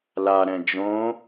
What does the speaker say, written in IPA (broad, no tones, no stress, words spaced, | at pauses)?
laɾɛ̃ d͡ʒõ